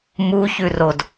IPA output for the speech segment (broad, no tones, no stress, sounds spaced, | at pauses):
m u ç ʉ r o d